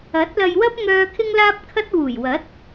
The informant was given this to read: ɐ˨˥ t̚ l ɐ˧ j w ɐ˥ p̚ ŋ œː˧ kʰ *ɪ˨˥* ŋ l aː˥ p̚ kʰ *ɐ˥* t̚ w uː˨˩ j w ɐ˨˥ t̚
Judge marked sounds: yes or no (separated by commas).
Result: no, yes